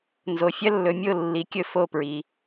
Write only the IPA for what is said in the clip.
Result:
n z o˧ fʲ ɐ˥ lː ɵ˧ mʲ o˥˩ lː i˩˥ kʲ ɵ˥˩ f o˥˩ p ɹ i˩

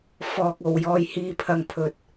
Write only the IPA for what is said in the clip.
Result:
f ɔː˨ k̚ o˨ w j ɔː˨ j h iː˨˧ pʰ ɐ˨ ŋ pʰ ɵ˨ t̚

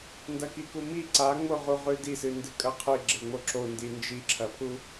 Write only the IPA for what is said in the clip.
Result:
n d ɐ k i k u m i ǀ a ŋ͡m o ʁ u ʁ ʉ d i s ɨ n d ɨ kʼ ɐ qʰ ɨ ɡ͡ǁ e ŋ͡m o ǁ o n d i n d͡ʒ i ǁʰ ɐ pʰ u

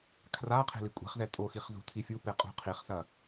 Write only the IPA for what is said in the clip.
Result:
kʰ r a qʰ e̤ l i kʷʼ e̤ χ z ɛ tʼ o x i χ z ṳ tʰ i fʲ u p e qʼ ṳ qʰ i χ s ɐ

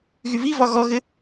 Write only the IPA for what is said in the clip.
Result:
ɣ y v i v ɒ ɣ ɔ ɣ ɘ

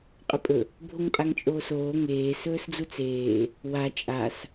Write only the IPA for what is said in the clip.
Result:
qʼ ɵ pʼ ɵ | bʱ o ŋ pʼ a ŋ t͡ʃʼ oː s oː ŋ eː s ɵː s d͡z u t͡s eː | w a t͡ʃʼ a s

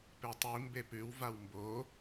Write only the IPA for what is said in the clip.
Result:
p e tˤ i m b e p ʉ w v a w m b o

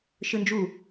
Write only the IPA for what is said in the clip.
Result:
ʃ ɯ n d͡ʒ u

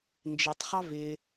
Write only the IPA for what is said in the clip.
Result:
n d͡ʒ ɪ tˤ χ ɑ v ɪ

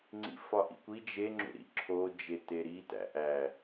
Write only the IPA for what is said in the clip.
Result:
ŋ͡ǀ ḭ f ɒ ʔ ḭ kʷ i d͡ʒ e ŋ͡ǁ ṵ ɾ ḭ ǁʰ o d͡ʒ e t e ɾ i t æ̰ ʔ æ

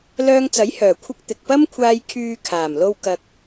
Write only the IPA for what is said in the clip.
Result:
l œː˧ ŋ t͡s ɐ˨˥ j h œː˨˩ kʷʰ ɪ˧ k̚ t̪ ɪ˨ k̚ p ɐ˥ m kʷʰ aː˧ j kʰ yː˧ kʰ aː˨˩ m l o˧ w k ɐ˧ k̚

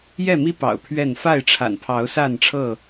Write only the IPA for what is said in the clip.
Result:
j ɛ˥˨ m i˦ p ɑ̰˨˩ ʊ̯ pʰ ɥ ɛ˥˨ n f a˥˨ ɪ̯ ʈ͡ʂʰ a̰˨˩ n pʰ ɑ˨˦ ʊ̯ s a˥˨ n ʈ͡ʂʰ ɤ˥˨

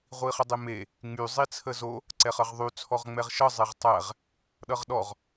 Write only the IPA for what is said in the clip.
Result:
ʁʷ i χ ə dˤ e m e | ŋ͡m y zˤ i t͡sʰ ə z o | ǀ ɛ χ ʌ ʁ ðˤ y t͡sʰ ɔ ʁ ŋ͡m ɛ ʁ ʃ ʌ zˤ e ʁ tˤ æ ʁ | ɗ ʌ ʁ ɗ ɔ ʁ

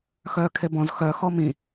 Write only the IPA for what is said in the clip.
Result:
x œː kʰ e b ɔ̃ z x œ x ɔ m ĩ

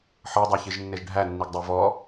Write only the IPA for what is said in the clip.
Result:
ħ ɤ dˤ æ ç i ʒ nː e ʒ ɖʱ æ nː i ɡ dˤ ɤ v ɔ

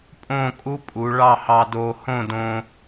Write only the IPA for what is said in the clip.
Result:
pʼ õ˥˧ kʼ u˥ pʼ u˩˧ ɭ ɑ˥˧ h ɑ˧ d oː˧ h õ˥˧ d õ˧

